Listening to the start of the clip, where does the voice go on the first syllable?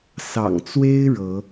low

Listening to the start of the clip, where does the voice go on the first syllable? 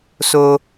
high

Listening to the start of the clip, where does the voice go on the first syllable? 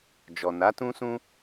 low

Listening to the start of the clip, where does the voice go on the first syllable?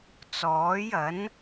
rising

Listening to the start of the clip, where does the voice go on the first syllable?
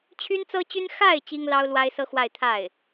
high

